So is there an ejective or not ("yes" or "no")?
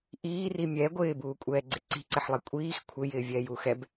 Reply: yes